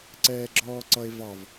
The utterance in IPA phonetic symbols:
ǀ ɛː ɡ͡ǁ ɔː ǀ ʌ e̯ v ɑ v

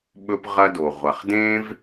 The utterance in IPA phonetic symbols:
ɓ ɵ˥ p ʁ ɐ˥ d o˩ ʁʷ ɐ˩ χ d ẽ˥ v

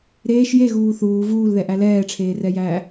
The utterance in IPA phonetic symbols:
ɾ eː ʃ j e ɣ uː θ uː v uː l ð ɛ ʔ æ l ɛː ʈ͡ʂʰ eː r ɛ j æː

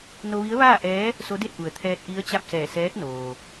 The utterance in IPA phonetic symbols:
n o˧ ʋ i˧˥ ə̯ ʋ aː˥˨ ʔ ɛː˧˥ | s o˧˥ d e˥˨ t̚ ʔ u˩ ə̯ t̪ʰ ɛː˧ t̚ ʔ i˧˥ ə̯ t͡ɕ a˥˨ p̚ s ɛː˧˩ s ɛː˧˥ k̚ n oː˩

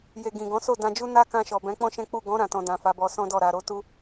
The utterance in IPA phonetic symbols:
j e˨ ɡ ĩ˨ ɡ ɔ̃˨˦ s o˦˨ d ã˧ d͡ʒ u˦ n a˦ k ã˧ ʃ ɔ˨ b ɛ̃˨˦ k͡p ɔ̃˦ ʃ ɛ̃˦ k͡p u˦˨ ɡ ɔ̃˨˦ ɾ ã˦˨ t ɔ̃˧ d ã˨ f a˨˦ b ɔ˧ s ɔ̃˦ d ɔ˦˨ ɾ a˨ ɾ o˧ t u˦

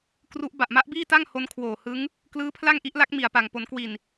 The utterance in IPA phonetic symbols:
k r u˦˥ ʔ b a˨˩ ʔ m a˦˥ ʔ b iː˥˩ t a˥˩ ŋ h o˦˥ n kʰ w oː˨˩ h ɯ˦˥ ŋ | k l ɯː˦˥ pʰ l a˥˩ ŋ ʔ i˦˥ ʔ l a˦˥ k̚ m i˨˩ a̯ p a˨˩ ŋ p o˩˦ n k w i˨˩ n

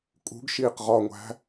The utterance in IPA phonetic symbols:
kʼ ṳ ɡ ʃ iː q ʁ ɒ ŋʷ æ̤

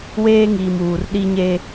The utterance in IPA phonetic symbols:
w eː˦ ŋ iː˨ m uː˨ r ɗ i˦ ɲ e˦

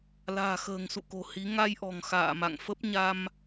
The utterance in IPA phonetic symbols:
l a̤ː˨˩ x ə̤ː˨˩ ŋ s ṵ˧˨ k o̤˨˩ h i˨˦ ŋ a˧ j ʔ ɔ̤˨˩ ŋ x a̰ː˧˨ m a̰˧˨ ŋ f ə˦˥ p̚ ɲ a˧ m

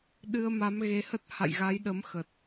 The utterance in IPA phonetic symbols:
ɗ ɨ˧ ə̯ m a˨˦ m ɣ e˧ h ə˦˥ t̚ h a̰˧˨ j ɣ a˨˦ j ɗ ə˨˦ m x ə˨˩ t̚

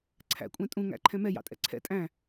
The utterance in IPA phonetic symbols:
ǀʰ æ̰ kʷʼ ɛ̃ tʼ ũ ŋ æ̰ ǃʰ ɛ̃ m ɛ j ɑ̰ tʼ ɛ̰ ǀʰ ɛ̰ tʼ æ̃

